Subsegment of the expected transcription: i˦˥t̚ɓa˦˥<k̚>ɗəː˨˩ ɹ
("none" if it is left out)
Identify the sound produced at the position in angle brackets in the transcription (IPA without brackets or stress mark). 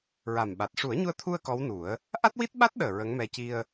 t̚